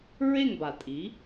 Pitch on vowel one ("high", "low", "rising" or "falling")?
falling